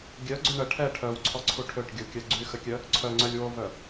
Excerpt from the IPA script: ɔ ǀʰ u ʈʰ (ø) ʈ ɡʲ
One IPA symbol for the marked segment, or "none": ø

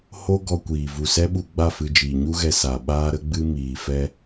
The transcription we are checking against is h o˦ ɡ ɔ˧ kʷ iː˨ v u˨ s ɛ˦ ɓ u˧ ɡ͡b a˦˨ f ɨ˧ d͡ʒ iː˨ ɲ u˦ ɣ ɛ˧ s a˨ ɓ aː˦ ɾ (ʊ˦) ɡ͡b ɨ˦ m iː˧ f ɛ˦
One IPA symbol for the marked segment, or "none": ə˦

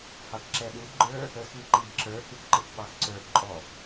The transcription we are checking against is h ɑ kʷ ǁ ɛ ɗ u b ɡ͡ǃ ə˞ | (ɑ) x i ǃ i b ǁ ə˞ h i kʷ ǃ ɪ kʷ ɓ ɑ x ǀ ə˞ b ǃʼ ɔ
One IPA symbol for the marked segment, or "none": ə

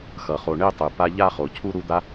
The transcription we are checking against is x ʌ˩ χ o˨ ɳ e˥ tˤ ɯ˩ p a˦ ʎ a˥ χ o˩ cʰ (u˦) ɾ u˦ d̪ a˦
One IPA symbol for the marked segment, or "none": u˥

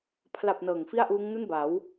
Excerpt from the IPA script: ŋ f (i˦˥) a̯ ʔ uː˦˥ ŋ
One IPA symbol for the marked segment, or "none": i˥˩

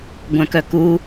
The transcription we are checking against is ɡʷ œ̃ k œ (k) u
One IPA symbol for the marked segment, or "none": k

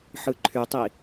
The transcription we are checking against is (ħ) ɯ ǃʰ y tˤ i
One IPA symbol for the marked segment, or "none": ħ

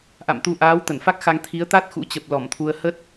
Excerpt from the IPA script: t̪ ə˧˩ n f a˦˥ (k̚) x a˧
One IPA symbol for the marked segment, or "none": k̚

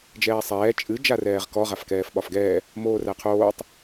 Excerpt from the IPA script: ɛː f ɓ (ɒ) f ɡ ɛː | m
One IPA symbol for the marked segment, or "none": ɒ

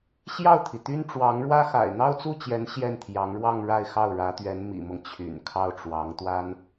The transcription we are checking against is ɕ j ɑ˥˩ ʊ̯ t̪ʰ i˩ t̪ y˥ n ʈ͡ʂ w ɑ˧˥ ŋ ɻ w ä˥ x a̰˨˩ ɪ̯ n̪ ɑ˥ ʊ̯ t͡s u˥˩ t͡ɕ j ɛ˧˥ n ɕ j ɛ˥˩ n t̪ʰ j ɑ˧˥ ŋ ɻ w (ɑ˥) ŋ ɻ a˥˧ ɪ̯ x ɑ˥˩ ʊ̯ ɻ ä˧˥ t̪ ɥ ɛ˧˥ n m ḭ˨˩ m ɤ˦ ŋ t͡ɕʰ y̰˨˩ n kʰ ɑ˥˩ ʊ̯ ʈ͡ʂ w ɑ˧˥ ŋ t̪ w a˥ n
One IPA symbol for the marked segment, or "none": ɑ˥˧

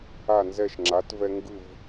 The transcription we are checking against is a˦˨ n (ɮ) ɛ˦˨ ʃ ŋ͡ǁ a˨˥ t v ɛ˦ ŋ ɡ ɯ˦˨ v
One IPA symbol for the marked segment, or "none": z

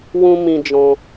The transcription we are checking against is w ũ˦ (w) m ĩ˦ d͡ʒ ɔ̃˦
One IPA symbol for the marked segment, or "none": none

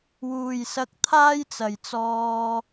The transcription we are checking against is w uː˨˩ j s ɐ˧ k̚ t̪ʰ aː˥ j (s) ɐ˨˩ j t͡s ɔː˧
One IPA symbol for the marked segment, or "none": t͡s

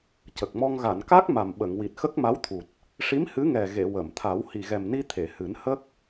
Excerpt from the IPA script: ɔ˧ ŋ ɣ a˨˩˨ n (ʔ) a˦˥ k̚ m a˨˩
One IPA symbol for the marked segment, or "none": k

